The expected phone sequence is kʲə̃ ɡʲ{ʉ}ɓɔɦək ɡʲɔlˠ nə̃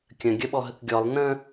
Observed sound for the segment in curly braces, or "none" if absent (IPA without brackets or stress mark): ə